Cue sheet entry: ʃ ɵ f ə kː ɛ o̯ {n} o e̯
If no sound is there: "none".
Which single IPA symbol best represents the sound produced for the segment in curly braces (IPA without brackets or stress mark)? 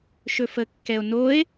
n